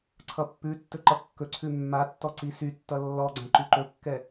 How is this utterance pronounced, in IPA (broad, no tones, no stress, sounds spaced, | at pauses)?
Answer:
ǀʰ ʌ pː ʉ tː ɵ ǃ ʌ kː ɵ ǀʰ ʉ mː a tː ɔ ǀ i s y tː ʌ lː ɔ ɡ͡ǀ ã ǃ y ǃ ɵ kː ɛ